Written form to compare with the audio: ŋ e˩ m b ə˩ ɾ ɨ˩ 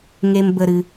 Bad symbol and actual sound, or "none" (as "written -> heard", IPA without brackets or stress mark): none